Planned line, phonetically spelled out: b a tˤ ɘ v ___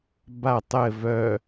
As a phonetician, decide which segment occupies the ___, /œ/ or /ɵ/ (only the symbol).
œ